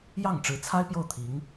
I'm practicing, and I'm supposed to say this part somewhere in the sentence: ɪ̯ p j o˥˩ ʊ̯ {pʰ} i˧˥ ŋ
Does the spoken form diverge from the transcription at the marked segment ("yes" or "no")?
yes